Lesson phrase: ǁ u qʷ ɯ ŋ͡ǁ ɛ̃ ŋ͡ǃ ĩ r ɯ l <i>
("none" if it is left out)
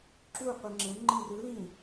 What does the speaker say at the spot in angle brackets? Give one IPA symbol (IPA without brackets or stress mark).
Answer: ĩ